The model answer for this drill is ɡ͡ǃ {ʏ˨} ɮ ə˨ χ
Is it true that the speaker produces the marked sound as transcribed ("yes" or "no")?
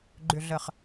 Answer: yes